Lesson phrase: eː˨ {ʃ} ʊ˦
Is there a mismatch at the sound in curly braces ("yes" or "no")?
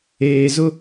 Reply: yes